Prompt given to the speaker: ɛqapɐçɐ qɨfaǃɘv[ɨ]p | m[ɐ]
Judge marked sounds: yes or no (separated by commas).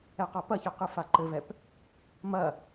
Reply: no, yes